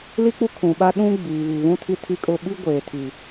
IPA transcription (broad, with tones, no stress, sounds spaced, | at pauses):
l i˦ k͡p u˦ kʰ ũ˨ ɓ a˦ ɗ ũ˦ ɡ͡b iː˨ β i˨ β ũ˦ tʰ i˦ tʰ i˦ kʼ ʊ˦ ɓ i˦ ɡʷ eː˨ tʰ i˨